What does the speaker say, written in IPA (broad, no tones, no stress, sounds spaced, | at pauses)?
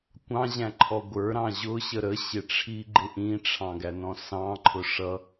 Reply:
kʷ ɑ̃ ʑ æ̃ ǃʰ ɔ ɡʷ ə˞ ɾ ɑ̃ ʑ ʊ ɕ ə ɾ ə ɕ ɪ ʈ͡ʂʰ i ɡ͡ǃ ɪ ʔ ĩ ʈ͡ʂʰ ɑ̃ ɡ æ n ɔ̃ s ɑ̃ ǃʰ ʊ ʂ ʌ